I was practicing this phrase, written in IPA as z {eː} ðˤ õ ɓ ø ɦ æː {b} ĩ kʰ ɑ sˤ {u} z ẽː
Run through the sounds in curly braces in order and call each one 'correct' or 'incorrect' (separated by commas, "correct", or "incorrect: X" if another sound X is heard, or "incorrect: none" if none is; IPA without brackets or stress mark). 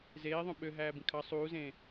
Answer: correct, correct, incorrect: uː